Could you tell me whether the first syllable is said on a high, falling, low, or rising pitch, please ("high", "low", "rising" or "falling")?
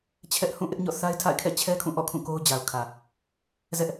high